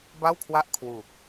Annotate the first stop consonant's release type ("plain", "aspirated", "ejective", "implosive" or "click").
plain